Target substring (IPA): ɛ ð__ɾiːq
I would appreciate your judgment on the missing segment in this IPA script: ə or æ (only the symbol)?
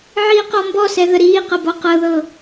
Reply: ə